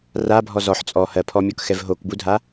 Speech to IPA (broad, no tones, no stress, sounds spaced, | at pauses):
r a bʱ ɔ z ɔ ħ t͡sʼ ɔ h ɜ pʰ ɔ mʲ ɔ k x ɛ v ɦ o k b u dʱ a